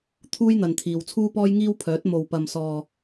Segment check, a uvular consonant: absent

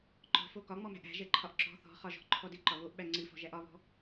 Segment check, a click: present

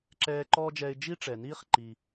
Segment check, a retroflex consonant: present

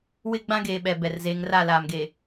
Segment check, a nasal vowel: present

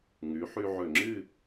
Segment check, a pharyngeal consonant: present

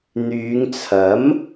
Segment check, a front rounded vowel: present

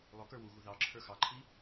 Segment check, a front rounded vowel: absent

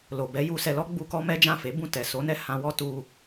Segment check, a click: absent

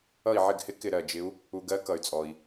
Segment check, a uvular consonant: absent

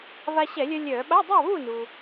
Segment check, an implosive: present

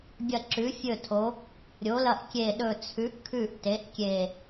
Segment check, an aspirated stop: present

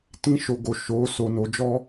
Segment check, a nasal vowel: present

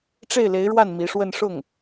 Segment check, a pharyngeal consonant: absent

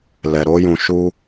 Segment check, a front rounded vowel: absent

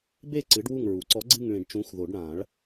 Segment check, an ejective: absent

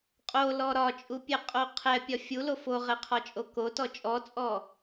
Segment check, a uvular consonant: present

